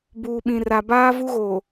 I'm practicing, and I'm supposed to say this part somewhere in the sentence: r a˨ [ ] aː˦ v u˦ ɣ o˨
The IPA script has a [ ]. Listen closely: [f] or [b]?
b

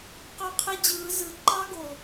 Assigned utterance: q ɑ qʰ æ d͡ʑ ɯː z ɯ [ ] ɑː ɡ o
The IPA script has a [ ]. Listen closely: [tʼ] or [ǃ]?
ǃ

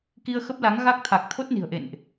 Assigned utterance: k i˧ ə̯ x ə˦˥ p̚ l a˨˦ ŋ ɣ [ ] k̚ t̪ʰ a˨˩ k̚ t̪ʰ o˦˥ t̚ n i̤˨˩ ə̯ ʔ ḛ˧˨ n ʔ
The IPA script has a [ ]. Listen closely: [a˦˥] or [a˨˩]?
a˦˥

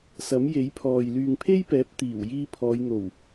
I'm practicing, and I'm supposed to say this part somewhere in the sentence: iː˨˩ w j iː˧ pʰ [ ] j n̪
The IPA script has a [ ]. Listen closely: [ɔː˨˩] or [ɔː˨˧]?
ɔː˨˧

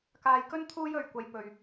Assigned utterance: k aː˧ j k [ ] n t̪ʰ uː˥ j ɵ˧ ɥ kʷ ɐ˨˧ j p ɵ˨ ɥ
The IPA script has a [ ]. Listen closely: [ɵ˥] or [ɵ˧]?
ɵ˥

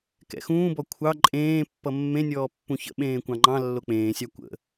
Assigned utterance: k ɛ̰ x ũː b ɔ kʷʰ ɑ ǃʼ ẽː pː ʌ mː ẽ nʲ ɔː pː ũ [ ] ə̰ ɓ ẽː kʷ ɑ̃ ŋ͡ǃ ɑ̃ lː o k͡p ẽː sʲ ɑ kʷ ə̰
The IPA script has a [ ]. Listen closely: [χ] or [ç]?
ç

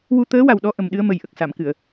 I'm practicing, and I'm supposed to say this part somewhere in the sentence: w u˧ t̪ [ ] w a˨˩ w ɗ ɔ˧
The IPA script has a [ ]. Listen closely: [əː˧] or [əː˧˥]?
əː˧˥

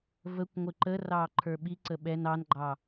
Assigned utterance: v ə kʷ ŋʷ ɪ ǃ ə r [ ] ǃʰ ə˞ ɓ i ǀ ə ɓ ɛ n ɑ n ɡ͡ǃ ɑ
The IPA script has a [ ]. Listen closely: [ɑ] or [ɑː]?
ɑː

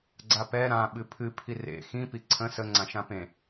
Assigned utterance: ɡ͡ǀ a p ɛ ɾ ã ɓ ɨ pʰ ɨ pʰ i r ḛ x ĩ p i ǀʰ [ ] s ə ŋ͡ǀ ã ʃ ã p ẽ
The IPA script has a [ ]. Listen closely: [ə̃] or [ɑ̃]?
ə̃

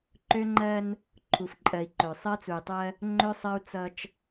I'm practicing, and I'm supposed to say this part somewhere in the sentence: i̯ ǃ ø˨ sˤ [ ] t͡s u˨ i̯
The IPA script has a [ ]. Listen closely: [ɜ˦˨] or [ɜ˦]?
ɜ˦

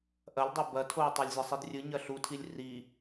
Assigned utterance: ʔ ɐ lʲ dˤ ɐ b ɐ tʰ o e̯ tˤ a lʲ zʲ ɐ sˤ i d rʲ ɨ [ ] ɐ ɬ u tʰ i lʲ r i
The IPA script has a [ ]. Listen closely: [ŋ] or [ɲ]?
ɲ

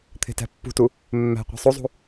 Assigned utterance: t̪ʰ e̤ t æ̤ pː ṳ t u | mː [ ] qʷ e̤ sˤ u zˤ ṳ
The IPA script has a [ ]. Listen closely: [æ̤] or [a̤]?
æ̤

